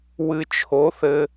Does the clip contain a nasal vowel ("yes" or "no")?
no